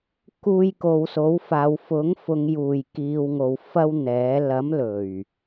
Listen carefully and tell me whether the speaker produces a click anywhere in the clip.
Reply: no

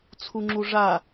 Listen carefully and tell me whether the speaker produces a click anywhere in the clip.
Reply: yes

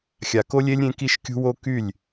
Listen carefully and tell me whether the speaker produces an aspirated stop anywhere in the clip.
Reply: no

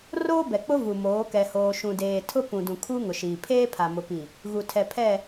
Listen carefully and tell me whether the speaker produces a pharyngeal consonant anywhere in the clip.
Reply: no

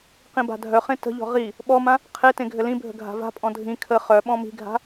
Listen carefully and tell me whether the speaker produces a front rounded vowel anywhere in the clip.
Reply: yes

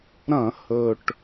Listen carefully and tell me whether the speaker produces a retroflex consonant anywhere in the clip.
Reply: yes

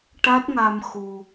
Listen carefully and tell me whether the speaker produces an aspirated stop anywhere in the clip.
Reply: no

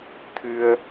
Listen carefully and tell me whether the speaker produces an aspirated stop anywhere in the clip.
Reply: yes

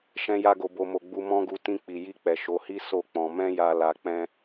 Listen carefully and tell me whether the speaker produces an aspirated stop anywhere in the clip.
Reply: no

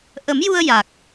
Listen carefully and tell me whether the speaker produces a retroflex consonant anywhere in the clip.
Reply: no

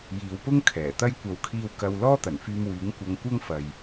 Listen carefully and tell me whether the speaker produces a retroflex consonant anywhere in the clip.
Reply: no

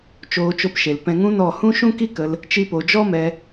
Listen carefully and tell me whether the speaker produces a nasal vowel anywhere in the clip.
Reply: yes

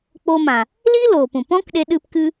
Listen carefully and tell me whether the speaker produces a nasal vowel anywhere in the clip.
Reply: yes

